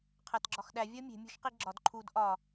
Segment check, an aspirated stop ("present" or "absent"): present